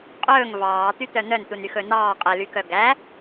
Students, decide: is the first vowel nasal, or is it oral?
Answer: oral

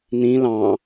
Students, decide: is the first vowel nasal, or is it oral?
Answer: nasal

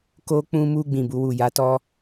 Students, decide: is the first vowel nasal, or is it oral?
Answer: oral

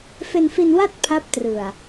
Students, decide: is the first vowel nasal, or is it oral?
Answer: oral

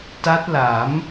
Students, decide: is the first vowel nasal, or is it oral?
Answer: oral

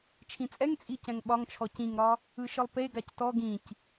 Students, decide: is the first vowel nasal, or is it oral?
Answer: nasal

